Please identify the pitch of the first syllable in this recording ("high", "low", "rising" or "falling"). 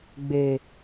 low